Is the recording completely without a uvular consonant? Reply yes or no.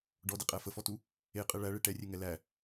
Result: no